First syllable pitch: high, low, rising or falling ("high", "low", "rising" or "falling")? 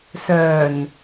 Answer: low